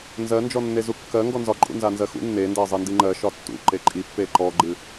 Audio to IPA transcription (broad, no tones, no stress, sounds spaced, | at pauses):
n z ɜ n d͡ʒ ɔ nː e z u kː ɜ ŋ ɡ ɔ n z ɒ ǃʼ ṵ n z a n z ɜ x ṵ nː e n d ɜ zˤ i n d i ŋ͡ǃ ɜ ʃ ɒ tː ṵ ǃ e ǃʼ i pː e ǃ ɔ ɡ͡ǃ ɨ